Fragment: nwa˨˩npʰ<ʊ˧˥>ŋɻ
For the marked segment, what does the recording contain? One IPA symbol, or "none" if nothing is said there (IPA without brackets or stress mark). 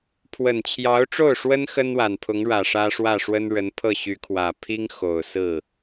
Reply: ʊ˧˥